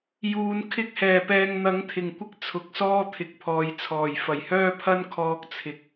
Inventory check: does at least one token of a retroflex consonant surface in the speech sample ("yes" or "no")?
no